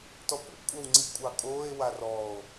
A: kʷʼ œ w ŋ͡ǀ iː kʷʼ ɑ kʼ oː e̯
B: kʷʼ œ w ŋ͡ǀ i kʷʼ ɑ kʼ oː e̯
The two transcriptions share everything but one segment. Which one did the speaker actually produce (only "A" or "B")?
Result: B